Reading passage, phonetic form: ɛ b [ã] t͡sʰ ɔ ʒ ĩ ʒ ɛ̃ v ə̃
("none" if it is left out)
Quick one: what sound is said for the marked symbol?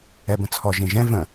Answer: ə̃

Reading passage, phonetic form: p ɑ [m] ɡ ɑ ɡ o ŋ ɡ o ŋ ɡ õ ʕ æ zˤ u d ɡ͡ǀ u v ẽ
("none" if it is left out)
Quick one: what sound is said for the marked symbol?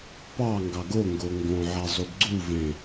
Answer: ŋ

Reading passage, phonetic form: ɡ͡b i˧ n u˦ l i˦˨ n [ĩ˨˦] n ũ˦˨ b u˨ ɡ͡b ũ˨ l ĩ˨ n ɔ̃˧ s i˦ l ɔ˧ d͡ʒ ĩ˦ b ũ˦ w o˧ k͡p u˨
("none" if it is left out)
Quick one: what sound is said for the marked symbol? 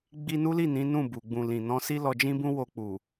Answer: ĩ˨˦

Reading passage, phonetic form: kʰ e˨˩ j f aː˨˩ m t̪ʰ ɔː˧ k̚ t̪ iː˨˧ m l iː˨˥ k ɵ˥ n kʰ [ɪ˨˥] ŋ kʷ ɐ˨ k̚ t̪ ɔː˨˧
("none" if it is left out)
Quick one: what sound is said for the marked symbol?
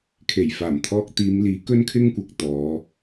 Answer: ɪ˥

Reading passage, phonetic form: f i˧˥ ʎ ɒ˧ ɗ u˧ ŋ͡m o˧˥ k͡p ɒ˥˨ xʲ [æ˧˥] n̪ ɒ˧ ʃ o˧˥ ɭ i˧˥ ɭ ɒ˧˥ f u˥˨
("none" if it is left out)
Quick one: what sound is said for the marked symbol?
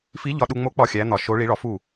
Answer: æ˧˥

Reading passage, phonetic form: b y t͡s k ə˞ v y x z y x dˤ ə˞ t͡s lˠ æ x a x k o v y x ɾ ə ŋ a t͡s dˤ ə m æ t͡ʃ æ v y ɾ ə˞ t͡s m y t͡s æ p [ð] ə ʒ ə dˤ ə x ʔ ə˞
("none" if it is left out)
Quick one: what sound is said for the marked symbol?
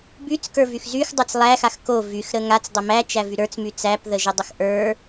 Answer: ð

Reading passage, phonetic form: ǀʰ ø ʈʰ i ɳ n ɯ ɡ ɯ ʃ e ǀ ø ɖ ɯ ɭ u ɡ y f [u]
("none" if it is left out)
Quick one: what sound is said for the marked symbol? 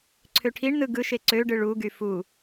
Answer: u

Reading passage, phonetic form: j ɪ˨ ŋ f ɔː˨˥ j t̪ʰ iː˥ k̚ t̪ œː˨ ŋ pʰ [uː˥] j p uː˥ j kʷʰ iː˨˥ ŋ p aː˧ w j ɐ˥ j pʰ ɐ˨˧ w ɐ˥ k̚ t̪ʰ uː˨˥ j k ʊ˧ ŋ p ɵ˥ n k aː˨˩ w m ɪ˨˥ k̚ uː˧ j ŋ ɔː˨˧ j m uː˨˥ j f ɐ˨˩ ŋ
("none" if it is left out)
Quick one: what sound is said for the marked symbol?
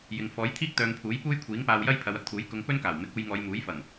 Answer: uː˨˥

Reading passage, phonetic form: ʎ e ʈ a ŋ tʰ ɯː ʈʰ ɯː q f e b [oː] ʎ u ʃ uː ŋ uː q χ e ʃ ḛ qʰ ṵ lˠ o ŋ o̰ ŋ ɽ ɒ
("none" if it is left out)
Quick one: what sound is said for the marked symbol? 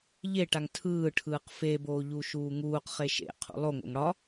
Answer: oː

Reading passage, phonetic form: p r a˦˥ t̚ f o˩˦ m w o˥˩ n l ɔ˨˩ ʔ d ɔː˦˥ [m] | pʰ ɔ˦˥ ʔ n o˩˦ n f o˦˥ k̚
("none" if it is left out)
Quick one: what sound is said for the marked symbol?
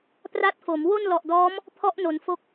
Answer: m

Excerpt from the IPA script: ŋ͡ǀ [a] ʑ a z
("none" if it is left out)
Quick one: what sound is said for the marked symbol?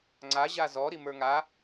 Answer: a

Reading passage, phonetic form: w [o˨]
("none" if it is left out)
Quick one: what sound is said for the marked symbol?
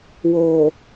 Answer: oː˨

